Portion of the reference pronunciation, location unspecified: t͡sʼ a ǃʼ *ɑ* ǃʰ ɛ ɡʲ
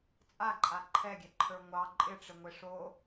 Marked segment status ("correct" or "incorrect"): incorrect